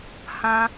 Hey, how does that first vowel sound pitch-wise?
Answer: high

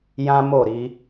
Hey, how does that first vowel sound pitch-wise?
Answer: high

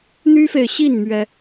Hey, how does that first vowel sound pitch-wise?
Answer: high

